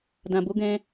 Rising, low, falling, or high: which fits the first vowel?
low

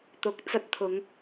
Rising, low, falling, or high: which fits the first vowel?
rising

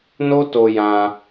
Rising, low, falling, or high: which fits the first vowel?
high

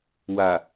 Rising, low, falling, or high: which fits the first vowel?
low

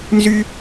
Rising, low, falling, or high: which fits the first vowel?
high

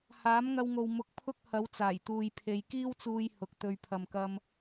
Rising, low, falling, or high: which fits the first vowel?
rising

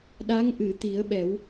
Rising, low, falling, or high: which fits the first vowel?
rising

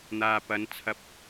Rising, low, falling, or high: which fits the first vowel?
low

